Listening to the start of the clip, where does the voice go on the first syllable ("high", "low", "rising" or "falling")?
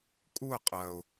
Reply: falling